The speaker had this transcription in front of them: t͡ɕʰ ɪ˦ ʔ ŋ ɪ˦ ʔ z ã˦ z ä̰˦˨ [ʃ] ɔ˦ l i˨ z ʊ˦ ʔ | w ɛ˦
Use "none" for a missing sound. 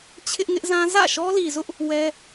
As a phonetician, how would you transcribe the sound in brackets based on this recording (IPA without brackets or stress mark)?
ʃ